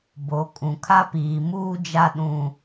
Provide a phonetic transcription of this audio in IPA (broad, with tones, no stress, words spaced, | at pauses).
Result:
bo˨˦ kʼũ˨kʰa˦piː˨ muː˦d͡ʒa˦ɗũ˦